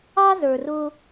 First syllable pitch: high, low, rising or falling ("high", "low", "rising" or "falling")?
high